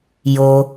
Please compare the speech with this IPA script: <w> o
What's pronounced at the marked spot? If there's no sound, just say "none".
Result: j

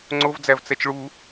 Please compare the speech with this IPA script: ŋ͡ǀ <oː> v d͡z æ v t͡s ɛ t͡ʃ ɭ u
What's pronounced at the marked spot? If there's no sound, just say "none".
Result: o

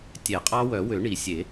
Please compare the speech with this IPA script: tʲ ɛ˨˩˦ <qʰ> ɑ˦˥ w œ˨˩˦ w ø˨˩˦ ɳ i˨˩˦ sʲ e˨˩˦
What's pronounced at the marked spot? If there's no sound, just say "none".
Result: qʼ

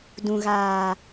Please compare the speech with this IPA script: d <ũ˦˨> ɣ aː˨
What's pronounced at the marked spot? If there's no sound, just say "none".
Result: ũ˨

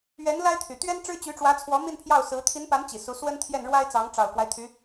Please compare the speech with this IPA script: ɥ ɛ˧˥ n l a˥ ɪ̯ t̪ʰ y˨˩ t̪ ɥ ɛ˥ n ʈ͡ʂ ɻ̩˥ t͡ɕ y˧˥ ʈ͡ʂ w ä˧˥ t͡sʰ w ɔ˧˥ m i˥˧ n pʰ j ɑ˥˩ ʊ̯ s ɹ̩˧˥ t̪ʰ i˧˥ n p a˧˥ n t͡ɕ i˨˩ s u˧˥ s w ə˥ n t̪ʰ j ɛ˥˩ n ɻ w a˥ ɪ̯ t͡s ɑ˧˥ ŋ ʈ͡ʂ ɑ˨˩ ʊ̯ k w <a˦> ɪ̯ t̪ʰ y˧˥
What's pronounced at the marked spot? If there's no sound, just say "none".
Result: a˦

